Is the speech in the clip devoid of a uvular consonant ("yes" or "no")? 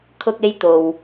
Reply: yes